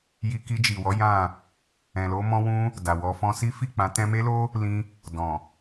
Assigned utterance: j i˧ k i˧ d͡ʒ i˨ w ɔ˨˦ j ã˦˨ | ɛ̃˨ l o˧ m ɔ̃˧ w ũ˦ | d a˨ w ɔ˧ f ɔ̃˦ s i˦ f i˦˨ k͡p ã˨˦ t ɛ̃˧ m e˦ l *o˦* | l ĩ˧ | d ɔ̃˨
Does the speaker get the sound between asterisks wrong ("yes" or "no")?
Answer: no